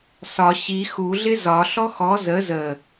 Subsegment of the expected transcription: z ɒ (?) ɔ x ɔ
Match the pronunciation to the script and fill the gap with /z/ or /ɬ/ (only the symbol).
ɬ